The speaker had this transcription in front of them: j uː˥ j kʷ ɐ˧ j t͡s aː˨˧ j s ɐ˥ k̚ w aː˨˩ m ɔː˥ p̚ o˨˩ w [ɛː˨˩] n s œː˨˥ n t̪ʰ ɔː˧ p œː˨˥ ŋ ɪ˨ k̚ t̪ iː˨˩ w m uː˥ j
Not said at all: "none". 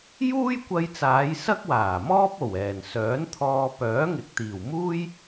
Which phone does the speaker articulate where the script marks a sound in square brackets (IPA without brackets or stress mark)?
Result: ɛː˨˩